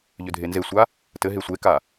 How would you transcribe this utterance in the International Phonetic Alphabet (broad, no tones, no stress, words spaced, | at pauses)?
ʎʏdʱenzesʷa | tɘɦe sʷeka